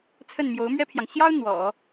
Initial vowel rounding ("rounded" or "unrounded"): unrounded